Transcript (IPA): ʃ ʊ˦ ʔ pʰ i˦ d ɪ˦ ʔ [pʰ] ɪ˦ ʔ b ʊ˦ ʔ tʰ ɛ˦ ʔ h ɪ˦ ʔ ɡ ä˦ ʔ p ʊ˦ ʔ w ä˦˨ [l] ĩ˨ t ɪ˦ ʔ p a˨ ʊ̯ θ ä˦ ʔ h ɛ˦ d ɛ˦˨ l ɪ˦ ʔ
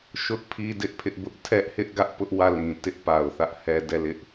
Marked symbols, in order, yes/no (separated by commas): yes, yes